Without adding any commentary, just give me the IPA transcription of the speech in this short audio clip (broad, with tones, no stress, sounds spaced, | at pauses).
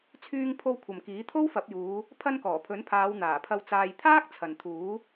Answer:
t͡sʰ yː˧ ŋ pʰ o˧ w kʷʰ ɐ˨ m k iː˨˥ t̪ʰ o˥ w f ɐ˨˥ p̚ j uː˨˧ | pʰ ɐ˧ n k ɔː˨˩ pʰ ɵ˨˥ n pʰ aː˨˧ w n̪ aː˨˩ pʰ ɐ˧ w t͡s aː˧ j t̪ʰ aː˥ k̚ t͡sʰ ɐ˨ n t̪ʰ uː˨˥